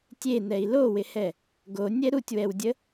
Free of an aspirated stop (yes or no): yes